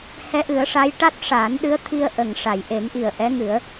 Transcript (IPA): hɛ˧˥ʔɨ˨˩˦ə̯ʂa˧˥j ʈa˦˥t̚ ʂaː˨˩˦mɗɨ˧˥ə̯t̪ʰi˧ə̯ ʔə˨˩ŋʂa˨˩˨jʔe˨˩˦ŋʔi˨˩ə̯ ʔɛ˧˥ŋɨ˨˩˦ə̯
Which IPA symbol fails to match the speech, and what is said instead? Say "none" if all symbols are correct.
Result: m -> n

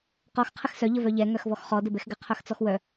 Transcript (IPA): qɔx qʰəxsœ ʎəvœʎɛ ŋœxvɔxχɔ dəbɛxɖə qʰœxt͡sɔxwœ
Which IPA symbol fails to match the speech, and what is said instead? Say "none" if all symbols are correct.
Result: ɖ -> ɡ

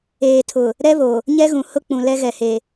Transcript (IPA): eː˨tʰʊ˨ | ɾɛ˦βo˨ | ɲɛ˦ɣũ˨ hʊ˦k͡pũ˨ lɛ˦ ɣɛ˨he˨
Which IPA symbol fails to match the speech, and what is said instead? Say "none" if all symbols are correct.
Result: none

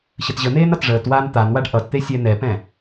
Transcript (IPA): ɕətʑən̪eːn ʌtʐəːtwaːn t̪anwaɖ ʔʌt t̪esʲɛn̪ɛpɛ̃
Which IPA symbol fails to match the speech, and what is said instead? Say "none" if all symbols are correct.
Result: none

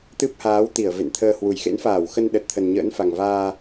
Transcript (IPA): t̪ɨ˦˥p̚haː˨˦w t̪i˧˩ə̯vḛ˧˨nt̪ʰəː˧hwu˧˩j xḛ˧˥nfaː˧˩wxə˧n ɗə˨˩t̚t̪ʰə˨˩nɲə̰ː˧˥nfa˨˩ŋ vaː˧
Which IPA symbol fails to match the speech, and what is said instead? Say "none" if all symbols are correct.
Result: none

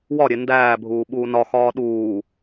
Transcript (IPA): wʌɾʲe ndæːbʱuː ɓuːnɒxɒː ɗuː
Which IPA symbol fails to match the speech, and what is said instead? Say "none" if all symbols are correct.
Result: ʌ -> ɒ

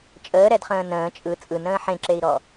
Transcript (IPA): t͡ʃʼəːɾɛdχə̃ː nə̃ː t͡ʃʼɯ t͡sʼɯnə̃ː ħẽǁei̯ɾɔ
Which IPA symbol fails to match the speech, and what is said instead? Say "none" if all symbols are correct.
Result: none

